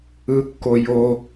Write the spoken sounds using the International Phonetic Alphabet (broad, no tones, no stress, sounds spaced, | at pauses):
ɯ kː o j o